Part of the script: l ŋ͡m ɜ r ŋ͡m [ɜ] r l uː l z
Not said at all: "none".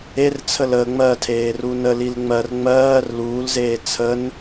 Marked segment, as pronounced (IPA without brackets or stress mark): ɜː